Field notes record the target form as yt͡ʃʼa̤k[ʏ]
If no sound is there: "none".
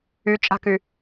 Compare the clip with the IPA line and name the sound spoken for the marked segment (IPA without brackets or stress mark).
y